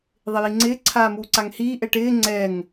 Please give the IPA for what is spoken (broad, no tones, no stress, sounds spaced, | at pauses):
ðˤ ɪ j i ŋ͡ǀ ɪː ǀʰ aː m uː ǀ a ŋ h iː ʔ ɛ ʈ ɪː ŋ͡ǀ ɛ ŋ